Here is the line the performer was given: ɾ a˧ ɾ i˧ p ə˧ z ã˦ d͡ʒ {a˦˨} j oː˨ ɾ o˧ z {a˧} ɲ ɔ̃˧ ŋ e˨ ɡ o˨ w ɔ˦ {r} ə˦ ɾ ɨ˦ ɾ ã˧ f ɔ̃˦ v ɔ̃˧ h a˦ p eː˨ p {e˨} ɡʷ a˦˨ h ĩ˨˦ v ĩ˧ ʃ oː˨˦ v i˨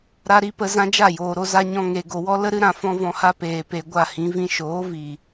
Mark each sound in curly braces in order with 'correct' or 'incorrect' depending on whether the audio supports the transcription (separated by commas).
correct, incorrect, incorrect, correct